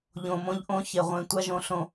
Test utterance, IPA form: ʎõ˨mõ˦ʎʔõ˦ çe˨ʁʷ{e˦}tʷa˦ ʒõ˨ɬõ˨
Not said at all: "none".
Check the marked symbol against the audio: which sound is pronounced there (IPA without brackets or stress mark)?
ẽ˦